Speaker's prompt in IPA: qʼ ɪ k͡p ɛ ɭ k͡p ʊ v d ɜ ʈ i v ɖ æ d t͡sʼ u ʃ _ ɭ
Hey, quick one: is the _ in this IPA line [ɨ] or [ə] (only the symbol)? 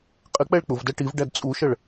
ə